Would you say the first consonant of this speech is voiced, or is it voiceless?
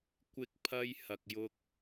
voiceless